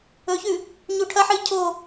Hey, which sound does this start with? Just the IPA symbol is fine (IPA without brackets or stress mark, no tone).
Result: ɵ